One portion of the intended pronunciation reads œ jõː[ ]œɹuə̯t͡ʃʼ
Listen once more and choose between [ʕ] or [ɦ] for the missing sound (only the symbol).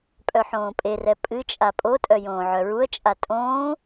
ʕ